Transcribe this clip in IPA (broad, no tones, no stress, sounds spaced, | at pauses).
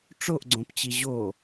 ʈ͡ʂ o ʔ ɡ͡ǀ õ p t͡ɕ i ʑ o